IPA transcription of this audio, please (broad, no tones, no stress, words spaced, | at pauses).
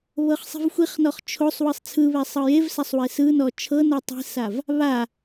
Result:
βɤχsˤi̤vxʷiχnɔχ t͡ʃʰosˤ wɯsˤt͡sʰɯβɛ sˤɤjevsasˤ wesɯnɔ t͡ʃʰɤno tˤi̤sav | βa